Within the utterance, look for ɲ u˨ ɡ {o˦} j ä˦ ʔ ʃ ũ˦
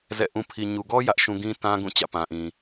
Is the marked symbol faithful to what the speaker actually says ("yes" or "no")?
no